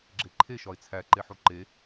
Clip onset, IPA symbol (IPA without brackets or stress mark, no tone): ɡ͡ǁ